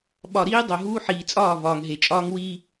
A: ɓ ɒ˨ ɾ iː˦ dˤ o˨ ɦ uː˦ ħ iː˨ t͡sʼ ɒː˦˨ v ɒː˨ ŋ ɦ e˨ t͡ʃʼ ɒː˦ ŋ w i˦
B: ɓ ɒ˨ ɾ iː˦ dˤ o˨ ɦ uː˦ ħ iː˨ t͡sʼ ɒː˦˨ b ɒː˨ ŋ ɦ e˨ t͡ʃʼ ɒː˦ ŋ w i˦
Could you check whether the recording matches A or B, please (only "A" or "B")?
A